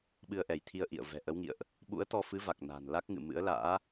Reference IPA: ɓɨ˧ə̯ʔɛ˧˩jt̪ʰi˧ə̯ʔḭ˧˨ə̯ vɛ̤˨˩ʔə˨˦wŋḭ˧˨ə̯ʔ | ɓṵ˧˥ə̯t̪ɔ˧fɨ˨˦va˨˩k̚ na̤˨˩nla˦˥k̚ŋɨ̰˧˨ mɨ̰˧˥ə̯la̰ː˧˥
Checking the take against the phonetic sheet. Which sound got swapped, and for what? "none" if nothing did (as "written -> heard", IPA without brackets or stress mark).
none